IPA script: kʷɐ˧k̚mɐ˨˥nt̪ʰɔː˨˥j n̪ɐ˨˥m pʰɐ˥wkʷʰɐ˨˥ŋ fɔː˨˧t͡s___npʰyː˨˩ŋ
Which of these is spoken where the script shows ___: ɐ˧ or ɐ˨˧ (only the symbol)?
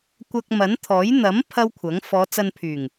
ɐ˧